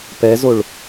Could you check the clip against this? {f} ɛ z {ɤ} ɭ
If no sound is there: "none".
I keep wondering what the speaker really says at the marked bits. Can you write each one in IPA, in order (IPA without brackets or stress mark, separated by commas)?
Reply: p, o